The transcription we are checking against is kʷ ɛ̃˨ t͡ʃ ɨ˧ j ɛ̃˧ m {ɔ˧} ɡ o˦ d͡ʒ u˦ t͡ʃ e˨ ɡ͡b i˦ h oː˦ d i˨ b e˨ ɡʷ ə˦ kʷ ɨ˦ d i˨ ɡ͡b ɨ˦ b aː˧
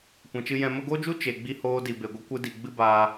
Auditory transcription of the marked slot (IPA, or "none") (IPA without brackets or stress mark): ə˧